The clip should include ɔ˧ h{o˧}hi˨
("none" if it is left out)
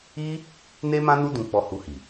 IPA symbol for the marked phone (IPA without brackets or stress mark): u˧